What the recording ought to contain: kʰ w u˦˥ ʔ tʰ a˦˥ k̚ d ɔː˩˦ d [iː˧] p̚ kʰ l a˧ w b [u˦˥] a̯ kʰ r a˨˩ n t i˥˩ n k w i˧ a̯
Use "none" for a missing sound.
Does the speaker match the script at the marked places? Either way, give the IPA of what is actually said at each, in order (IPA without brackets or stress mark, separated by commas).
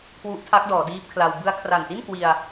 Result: iː˦˥, ɯ˦˥